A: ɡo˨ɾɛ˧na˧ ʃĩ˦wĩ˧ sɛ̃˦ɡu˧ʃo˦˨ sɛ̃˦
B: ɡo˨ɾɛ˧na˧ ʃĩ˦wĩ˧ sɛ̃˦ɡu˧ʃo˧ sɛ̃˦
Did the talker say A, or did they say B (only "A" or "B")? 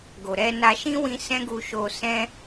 B